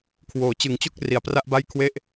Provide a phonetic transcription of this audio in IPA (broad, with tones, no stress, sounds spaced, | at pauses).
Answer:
kʰ w oː˩˦ t͡ɕ ɯ˨˩ ŋ t͡ɕ o˥˩ k̚ r i˨˩ a̯ p r a˥˩ ʔ b a˥˩ j kʰ w e˥˩ ʔ